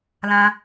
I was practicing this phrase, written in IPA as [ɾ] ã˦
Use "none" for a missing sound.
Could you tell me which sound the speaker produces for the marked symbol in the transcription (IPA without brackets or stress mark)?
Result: l